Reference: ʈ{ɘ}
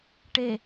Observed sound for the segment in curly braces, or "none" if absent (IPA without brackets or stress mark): e